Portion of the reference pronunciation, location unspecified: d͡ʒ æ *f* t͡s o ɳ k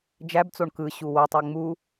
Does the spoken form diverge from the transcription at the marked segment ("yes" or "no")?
yes